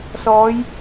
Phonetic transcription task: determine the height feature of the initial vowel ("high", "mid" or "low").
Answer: mid